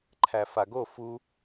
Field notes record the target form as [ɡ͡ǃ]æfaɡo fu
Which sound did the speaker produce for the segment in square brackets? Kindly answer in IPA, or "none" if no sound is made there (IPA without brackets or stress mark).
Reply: ǃʰ